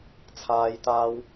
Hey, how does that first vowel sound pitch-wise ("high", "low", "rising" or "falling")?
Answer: high